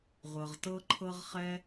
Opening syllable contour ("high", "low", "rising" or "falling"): low